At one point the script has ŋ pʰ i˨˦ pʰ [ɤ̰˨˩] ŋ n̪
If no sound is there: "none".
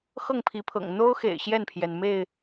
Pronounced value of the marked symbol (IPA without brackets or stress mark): ɤ̰˨˩